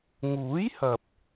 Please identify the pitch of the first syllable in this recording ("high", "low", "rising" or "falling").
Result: rising